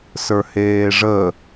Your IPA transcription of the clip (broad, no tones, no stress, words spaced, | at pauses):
sə˞heːʐə